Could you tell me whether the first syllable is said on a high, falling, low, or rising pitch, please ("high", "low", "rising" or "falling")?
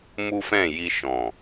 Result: high